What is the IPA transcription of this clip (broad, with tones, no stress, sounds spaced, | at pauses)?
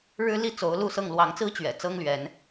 ɻ ɻ̩˦ l i˥˨ t͡s o˨˦ ʊ̯ l u˥˨ s ɤ˥˨ ŋ l w ɑ˨˦ ŋ t͡s ɹ̩˦ t͡ɕ ɥ ɛ̰˨˩ t͡s ɤ˦ ŋ l ɥ ɛ˨˦ n